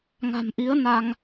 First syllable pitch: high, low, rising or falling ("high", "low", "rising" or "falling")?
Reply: low